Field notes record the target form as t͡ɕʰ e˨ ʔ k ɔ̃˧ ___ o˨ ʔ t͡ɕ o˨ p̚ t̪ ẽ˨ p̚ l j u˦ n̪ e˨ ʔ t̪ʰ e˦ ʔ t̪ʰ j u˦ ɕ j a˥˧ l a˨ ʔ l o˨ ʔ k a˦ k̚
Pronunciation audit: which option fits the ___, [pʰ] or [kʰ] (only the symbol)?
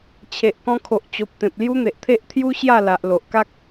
kʰ